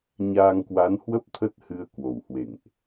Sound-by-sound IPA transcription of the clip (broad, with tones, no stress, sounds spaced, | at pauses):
ɲ aː˧ ŋ k w a˨˦ n h w ə˦˥ p̚ t̪ʰ ə˦˥ t̚ h ɨ˧ ə̯ k w o˨˩ w h w ḛ˧˨ ŋ ʔ